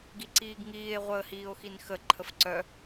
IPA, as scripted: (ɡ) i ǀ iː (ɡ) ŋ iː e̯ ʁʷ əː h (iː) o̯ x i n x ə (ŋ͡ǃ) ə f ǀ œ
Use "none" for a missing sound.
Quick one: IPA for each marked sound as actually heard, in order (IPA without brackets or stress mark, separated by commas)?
ɡ, ɡ, iː, ǃʰ